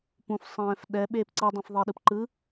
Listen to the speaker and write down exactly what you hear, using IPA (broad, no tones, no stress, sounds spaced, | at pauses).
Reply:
p ũ f sˤ ɛ̃ː f ɗ ɛ ɓ eː p ǀ ɯ dˤ ĩ f ðˤ i ɗ ɯ p ǃ ɯ